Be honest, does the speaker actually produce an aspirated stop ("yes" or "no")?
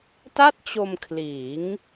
yes